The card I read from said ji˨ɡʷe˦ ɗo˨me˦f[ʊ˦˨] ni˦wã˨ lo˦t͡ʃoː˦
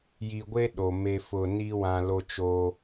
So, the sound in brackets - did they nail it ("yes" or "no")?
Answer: yes